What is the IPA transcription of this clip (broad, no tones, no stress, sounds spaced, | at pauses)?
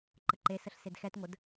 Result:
ǃ ə ǃ e s ə ɬ s e d x ɛ t ŋʷ ə d